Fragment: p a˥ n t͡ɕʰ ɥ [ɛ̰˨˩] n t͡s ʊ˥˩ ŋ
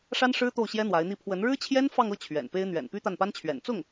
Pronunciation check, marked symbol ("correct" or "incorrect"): correct